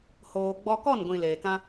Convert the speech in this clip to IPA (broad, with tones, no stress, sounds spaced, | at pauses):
h oː˧ ɡ͡b ɔ˦ k ɔ˦˨ n ɡʷ ĩ˨ l eː˨ k ã˦